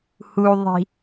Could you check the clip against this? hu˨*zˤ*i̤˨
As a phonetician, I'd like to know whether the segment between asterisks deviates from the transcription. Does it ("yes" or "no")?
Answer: yes